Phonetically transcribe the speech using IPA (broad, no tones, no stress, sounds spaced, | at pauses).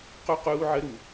q u q uː ʕ ə ɾ u